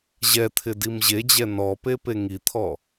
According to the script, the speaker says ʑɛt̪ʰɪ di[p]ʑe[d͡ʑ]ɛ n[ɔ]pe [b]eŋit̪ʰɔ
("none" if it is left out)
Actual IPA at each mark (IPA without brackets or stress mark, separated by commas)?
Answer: m, d͡ʑ, ɔ, p